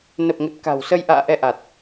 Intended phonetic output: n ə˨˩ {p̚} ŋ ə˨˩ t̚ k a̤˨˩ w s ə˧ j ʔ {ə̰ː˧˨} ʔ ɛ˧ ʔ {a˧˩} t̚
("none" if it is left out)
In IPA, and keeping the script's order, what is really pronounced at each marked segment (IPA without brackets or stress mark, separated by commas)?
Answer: p̚, a̰ː˧˨, a˨˩